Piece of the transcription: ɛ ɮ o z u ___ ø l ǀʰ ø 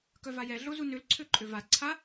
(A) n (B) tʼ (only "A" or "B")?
A